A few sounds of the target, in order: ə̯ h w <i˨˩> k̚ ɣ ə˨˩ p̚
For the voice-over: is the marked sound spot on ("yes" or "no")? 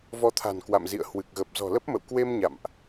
no